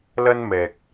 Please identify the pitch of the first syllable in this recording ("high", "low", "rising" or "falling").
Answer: high